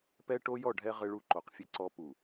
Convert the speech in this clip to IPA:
pɛ˦ʈo˦jɔ˦˨ɖʱɛ˦ ʁɘ˦ɭu˦ǃo˨qfʲɘ˦ ǀɔ˦ pu˨

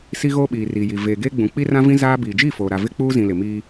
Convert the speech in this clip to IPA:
si˦ɣoː˦ɓiː˨ ri˨ji˨ veː˨ɡeː˦ɡ͡bũ˨ k͡pi˦rã˦vĩ˦ zaː˦ biː˨d͡ʒi˦˨foː˨ɾa˨ vɪ˦k͡puː˦zĩ˨ lɪ˨miː˦

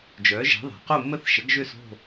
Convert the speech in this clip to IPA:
d͡ʒœ˩˥ʒɛ̤˩˥ðˤɛ̤˩˧ qo˥˨mːə˥˨θʃə˩˥ɡ ʒø˥˨so̤˥˨

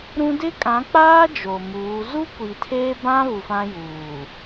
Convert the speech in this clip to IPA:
ɾũ˦ dɪ˦kʼã˨˦k͡paː˦ d͡ʒo˨muː˨˦ zu˦kʷi˨tʰeː˦bã˦ βu˨fã˦juː˨

